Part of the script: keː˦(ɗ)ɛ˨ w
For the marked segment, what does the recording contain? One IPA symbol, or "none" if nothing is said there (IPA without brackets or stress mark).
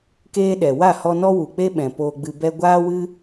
ɗ